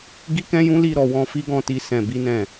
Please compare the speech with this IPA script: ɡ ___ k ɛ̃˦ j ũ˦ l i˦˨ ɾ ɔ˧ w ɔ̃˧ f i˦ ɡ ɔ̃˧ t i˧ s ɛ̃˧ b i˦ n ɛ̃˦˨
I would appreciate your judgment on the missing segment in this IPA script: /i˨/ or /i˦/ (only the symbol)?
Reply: i˦